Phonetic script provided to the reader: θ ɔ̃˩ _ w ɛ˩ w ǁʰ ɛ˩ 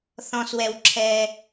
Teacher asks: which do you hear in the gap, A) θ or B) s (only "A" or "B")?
B